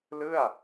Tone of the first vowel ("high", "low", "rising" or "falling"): falling